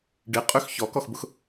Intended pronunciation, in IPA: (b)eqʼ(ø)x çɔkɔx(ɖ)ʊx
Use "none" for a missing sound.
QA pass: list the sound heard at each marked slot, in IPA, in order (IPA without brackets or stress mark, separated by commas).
ɖ, ø, b